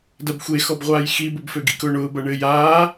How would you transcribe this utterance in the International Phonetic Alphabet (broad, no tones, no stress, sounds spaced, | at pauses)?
d ɐ b xʷ e x ɔ b ʁʷ aː j x i b ʊ b f ø ɡ ḭ k ʊː ɳ ʊː b ɐ ɳ ɘː j aː